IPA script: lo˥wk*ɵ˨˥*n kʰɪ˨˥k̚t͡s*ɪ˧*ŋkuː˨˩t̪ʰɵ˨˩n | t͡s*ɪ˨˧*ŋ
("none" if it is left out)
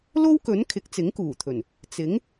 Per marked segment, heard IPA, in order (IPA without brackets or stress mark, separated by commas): ɵ˨˥, ɪ˨˥, ɪ˨˥